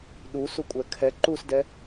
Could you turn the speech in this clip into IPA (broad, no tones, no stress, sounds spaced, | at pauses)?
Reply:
ɗ u s u kʷʼ ɛ kʰ ɛ ǃ u s d ɛ